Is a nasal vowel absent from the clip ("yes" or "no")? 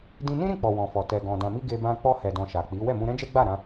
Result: no